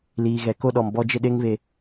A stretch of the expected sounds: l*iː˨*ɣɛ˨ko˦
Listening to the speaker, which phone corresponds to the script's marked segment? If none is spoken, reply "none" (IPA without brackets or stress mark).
iː˨